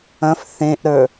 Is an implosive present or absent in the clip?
absent